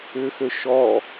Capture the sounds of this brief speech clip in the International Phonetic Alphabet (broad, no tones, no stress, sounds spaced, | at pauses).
ʏ x ø ʃ ɔ